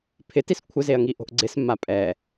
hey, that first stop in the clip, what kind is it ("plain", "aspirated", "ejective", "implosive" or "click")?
aspirated